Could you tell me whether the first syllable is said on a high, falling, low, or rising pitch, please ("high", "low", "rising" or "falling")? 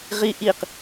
high